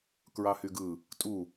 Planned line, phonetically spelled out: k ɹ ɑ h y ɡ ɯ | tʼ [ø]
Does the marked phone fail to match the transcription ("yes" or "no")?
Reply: yes